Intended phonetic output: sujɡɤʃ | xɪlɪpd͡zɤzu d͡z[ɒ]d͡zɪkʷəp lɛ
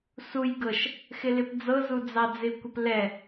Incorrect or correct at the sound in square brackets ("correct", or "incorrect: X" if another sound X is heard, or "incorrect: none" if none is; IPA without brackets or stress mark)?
incorrect: ɑ